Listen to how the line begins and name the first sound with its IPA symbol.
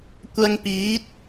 kʷ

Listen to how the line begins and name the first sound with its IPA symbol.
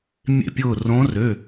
mʲ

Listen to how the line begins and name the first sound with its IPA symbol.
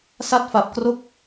s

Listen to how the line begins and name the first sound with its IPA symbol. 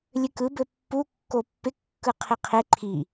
lʲ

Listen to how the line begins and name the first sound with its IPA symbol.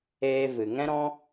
eː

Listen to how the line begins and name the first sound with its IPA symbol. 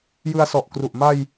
j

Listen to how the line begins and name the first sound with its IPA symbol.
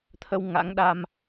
t̪ʰ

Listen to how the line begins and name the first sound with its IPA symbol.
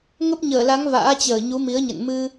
ŋ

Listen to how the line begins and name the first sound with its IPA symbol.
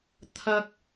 t̪ʰ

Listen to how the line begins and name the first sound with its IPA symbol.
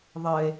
ðˤ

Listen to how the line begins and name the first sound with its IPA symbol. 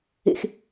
ḛ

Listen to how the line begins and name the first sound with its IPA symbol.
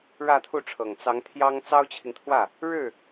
ɻ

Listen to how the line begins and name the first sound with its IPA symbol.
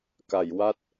k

